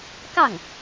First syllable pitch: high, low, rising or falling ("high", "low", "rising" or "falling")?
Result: falling